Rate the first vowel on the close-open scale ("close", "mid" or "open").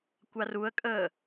open